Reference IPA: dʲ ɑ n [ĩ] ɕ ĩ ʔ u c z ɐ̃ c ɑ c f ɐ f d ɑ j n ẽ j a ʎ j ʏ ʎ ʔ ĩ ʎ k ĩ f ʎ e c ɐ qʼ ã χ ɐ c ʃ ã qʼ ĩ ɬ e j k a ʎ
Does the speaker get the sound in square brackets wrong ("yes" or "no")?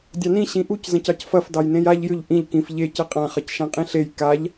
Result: no